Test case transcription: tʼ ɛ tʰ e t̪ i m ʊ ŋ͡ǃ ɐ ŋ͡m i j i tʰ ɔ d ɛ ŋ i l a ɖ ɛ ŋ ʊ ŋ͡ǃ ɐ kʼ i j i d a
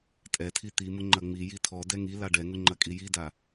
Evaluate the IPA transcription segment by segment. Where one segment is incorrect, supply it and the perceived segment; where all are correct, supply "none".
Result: e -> i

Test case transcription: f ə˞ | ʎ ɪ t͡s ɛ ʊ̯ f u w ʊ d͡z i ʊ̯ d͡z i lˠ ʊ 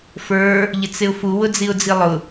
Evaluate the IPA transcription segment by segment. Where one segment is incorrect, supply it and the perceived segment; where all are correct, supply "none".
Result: ɛ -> ɪ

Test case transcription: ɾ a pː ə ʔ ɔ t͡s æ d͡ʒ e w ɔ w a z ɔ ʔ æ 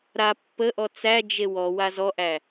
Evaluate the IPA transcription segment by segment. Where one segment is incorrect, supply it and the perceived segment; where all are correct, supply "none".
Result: none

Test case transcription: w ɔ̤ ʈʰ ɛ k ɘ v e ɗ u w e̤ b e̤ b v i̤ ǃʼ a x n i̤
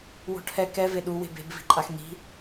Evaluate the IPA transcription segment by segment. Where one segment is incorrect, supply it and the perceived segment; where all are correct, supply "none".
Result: ɘ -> ɛ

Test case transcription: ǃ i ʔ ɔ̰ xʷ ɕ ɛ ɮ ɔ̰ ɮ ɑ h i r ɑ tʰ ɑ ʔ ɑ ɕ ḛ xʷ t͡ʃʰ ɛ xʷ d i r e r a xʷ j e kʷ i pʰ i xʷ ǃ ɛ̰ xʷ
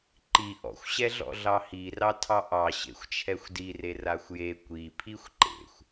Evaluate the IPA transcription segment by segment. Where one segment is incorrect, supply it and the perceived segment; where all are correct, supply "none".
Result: ɛ̰ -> ḛ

